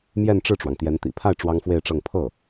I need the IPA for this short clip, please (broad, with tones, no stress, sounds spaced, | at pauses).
m j ɛ˥˧ n ʈ͡ʂ ɻ̩˥˩ ʈ͡ʂ w ɑ˩ ŋ t̪ j ɛ˧˥ n t̪ ḭ˨˩ pʰ a˥˩ ɪ̯ ʈ͡ʂ w ɑ˥ ŋ f w e˥˧ ɪ̯ ʈ͡ʂ ɤ˥˧ ŋ pʰ ɤ˥˩